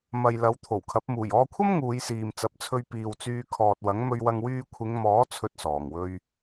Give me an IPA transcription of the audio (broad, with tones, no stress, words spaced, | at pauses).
mɐ˨j lɐ˨˥wt̪ʰo˨˩wkʰɐ˨˥p̚ muː˨˩jɔː˧kʷʰɐ˥m ŋuː˨˧jsiː˨mt͡sɐ˨˥p̚t͡sʰɵ˧ɥ piː˨wt͡syː˧kʰɔː˨t̚wɐ˨˥ŋ mɵ˧ɥwɐ˧ŋ wyː˧kʷʰɪ˨˧ŋmɔː˨˥ t͡sʰɵ˥t̚sɔː˨˩ŋwɵ˥ɥ